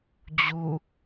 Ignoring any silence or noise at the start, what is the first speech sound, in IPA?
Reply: d͡ʑ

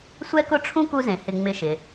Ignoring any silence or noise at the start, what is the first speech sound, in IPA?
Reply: sʷ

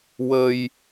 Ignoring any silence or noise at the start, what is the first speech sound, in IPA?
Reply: w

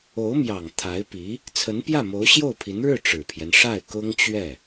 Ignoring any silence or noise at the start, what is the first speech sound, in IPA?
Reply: o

